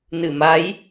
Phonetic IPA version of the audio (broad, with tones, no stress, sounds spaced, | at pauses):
n ɨ˧˩ m a˨˦ j